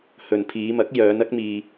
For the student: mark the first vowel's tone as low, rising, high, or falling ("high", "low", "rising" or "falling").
low